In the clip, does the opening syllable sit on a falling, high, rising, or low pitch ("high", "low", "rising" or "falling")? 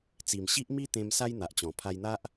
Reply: low